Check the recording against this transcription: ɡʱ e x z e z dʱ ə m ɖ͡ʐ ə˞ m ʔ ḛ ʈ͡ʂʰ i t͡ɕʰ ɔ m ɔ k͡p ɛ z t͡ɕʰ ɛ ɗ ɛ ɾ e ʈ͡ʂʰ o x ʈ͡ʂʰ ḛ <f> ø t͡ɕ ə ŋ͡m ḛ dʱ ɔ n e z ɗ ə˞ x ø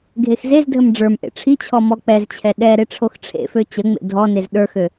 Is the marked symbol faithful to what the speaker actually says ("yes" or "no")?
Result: yes